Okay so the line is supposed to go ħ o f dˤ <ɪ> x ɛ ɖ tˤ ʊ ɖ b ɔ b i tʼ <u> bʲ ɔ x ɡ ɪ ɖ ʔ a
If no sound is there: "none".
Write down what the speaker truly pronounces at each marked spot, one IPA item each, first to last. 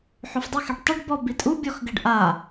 ɪ, u

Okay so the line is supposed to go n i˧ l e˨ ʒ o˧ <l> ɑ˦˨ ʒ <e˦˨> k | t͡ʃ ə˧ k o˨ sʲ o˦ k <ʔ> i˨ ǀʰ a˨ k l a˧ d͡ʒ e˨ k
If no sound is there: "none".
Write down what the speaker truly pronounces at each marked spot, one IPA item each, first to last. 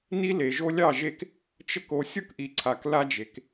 lʲ, e˦˨, ʔ

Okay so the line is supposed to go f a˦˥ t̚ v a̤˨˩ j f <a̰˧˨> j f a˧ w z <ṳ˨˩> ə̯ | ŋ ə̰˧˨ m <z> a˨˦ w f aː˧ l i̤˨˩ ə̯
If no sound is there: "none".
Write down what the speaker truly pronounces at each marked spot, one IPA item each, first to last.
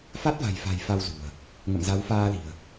a̤˨˩, ṳ˨˩, z

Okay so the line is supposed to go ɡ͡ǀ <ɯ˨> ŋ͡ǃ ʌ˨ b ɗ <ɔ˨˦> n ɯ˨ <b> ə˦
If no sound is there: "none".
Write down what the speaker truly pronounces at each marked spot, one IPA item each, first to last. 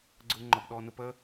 ɯ˨, ɔ˨, p

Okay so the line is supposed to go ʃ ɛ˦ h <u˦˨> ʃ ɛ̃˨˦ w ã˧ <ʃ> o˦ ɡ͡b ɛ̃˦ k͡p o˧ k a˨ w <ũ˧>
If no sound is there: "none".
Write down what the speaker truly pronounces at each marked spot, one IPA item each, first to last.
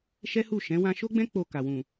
u˦˨, ʃ, ũ˨

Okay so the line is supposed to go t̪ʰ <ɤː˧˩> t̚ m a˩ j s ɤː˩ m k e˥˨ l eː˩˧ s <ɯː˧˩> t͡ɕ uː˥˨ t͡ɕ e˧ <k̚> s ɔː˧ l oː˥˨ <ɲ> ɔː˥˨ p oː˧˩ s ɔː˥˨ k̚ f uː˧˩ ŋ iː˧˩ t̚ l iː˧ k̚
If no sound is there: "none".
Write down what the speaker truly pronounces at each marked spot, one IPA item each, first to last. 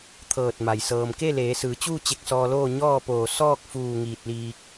ɤː˧˩, ɯː˩˧, k̚, ɲ

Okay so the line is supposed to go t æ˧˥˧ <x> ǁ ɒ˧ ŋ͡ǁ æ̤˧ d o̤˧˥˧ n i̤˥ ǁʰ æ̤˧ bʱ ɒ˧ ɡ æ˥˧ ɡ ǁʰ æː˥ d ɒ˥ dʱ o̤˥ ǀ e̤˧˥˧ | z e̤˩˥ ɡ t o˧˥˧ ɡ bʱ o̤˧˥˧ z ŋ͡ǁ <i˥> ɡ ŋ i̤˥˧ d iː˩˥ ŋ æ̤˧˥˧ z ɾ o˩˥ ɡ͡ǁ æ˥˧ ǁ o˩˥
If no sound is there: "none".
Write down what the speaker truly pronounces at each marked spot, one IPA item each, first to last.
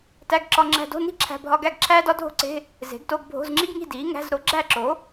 ɡ, i˥

